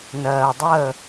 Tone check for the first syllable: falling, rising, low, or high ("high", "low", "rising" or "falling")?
low